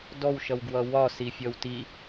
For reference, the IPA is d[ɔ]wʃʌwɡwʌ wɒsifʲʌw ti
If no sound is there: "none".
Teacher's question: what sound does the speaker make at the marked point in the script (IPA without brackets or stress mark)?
ɔ